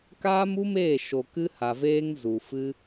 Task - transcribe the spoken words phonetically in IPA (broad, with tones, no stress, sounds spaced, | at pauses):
k aː˦ m u˦ m eː˦˨ ʃ o˨ k ɨ˦ h a˨ v eː˦ ŋ z u˨ f ɨ˦